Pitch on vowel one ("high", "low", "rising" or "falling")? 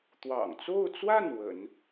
low